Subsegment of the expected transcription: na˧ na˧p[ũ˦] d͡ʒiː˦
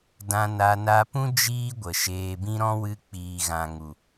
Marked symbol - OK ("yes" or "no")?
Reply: yes